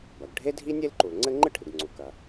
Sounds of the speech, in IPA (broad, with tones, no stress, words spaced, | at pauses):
bɐ˩ɡ ɖʱe˥dʱi˥ nʲe˥lǃu˩lŋ͡ǀɘ˥ ŋ͡ǃɨ˥ʈʰɨ˩ɡŋ͡ǀu˩ kɐ˩